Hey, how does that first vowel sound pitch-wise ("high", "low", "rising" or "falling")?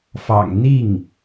low